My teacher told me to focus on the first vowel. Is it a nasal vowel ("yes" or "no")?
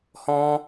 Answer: yes